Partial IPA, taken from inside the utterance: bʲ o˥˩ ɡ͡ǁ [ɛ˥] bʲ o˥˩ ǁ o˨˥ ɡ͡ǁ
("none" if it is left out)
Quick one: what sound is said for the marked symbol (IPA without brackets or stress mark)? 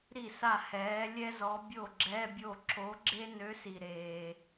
ɛ˧˥˧